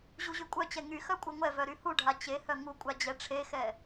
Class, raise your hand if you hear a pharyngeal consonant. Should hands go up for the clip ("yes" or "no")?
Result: no